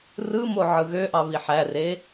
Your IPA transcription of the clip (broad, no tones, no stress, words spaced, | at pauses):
rɯmo ʕɯɣøʔɑ βiħære